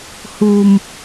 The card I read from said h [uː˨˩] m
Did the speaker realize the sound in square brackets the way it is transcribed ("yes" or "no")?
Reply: no